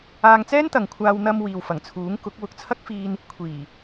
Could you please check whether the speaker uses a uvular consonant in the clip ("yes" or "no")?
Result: no